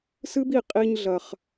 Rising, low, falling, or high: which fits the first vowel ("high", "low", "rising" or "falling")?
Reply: high